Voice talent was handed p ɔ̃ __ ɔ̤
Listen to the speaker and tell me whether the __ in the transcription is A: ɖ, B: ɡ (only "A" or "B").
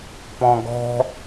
B